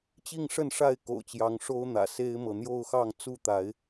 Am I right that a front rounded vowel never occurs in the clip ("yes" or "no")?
yes